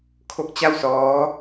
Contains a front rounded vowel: no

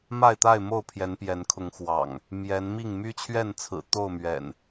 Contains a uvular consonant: no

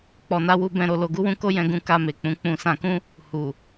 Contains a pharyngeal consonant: no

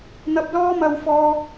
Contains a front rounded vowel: no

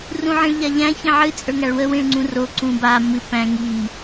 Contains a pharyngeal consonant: yes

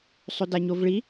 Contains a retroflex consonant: yes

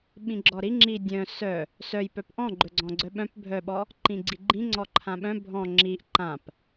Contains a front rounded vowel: yes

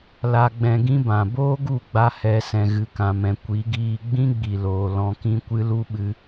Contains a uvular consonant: no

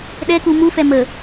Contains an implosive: yes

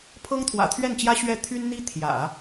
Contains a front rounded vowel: yes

